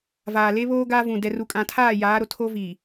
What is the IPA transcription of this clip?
v aː˨ l e˦ β oː˦ ɡ aː˦ v ũ˨ d ɛ˨ r u˨ kʼ ã˨ tʰ aː˦˨ j aː˨˦ ɾ o˨ tʰ o˦ v iː˨

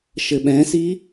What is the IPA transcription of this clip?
ʃ ɘ ɓ ɛ̃ s i

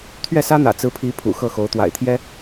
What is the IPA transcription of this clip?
t̪ʰ ɥ ɛ˥˩ s ä˥ n̪ ä̰˨˩ t͡s ɹ̩˧˥ pʰ i˧˥ pʰ ṵ˨˩ x ɤ˥˩ x o˧˥ ʊ̯ t̪ w a̰˨˩ ɪ̯ t̪ʰ j ɛ˥

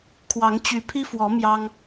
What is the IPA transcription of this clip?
kʰ w ɑ˨˦ ŋ t͡ɕ y˨˦ pʰ i˦ f w ɔ˨˦ m j ɑ˦ ŋ

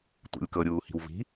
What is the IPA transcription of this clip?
tʷ ḛ lʲ k ɤ ɾʲ uː h i̤ w v i̤

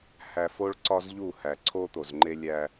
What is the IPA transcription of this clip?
h æ˨ f o˦ ɭ ǀ ɒ˦ z ʎ u˦˨ h æ˨ ǀʰ o˦ t̪ o˨ z ŋ͡ǃ e˦ lʲ æ˦

